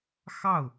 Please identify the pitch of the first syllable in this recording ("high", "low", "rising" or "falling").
falling